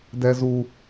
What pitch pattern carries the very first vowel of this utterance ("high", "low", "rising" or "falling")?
high